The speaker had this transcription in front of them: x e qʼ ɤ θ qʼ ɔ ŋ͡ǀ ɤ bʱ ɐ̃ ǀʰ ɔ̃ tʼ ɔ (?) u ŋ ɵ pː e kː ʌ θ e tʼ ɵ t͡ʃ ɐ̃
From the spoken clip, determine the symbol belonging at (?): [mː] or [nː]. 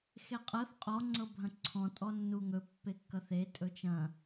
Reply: nː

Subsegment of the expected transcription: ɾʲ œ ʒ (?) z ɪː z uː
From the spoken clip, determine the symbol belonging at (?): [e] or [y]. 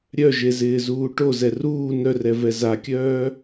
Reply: e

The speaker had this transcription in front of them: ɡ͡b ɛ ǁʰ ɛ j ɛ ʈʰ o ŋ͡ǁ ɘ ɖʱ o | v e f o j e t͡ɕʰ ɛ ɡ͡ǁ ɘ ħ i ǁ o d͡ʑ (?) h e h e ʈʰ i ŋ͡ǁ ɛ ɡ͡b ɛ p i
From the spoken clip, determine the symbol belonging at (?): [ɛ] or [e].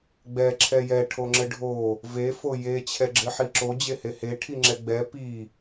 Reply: e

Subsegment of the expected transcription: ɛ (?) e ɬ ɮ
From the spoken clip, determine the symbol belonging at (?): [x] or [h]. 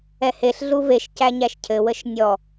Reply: h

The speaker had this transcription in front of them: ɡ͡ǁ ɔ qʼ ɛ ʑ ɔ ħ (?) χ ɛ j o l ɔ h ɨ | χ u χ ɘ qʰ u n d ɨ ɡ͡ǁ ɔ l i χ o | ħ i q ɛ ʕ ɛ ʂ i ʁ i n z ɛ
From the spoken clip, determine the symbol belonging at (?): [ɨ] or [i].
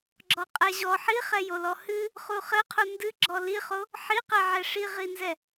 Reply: i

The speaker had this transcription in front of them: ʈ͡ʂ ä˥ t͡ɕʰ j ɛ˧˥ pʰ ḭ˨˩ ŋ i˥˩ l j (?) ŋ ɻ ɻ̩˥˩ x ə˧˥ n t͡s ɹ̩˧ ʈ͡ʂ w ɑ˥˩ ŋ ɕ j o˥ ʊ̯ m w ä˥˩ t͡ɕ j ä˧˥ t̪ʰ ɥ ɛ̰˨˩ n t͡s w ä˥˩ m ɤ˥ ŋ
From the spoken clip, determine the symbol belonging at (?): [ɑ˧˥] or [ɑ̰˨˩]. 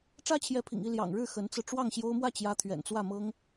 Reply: ɑ̰˨˩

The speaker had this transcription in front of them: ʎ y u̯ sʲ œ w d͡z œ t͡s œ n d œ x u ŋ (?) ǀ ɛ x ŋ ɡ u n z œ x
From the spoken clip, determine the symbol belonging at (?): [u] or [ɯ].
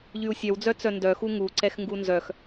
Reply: u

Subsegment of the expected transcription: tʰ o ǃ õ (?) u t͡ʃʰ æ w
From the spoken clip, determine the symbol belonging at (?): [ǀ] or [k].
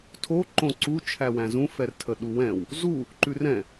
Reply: ǀ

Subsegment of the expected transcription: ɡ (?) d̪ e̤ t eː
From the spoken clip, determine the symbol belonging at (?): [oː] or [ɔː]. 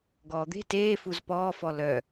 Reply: ɔː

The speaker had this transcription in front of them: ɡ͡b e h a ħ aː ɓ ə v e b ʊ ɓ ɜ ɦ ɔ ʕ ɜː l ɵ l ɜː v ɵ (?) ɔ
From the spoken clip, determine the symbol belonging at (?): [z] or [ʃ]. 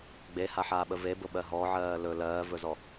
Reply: z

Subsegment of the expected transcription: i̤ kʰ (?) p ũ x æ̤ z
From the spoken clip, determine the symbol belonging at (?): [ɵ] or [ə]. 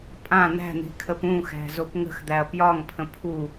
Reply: ə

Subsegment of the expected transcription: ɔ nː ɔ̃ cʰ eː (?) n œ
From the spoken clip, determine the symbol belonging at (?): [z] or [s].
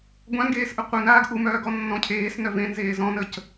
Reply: s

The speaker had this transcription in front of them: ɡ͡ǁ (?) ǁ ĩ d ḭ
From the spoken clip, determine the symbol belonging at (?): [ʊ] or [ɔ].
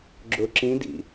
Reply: ʊ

